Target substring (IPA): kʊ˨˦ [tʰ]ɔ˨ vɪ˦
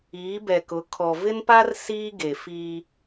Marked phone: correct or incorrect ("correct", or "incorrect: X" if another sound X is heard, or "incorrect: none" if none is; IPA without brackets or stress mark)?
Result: incorrect: kʰ